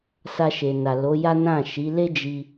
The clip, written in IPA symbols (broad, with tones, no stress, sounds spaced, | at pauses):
s a˧ ʃ e˨ n a˨ l o˨˦ j a˦ n ã˦˨ ʃ i˨˦ l e˦ d͡ʒ i˧